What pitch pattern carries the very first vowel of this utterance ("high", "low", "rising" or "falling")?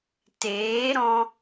rising